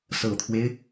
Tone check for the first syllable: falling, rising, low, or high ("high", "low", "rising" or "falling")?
low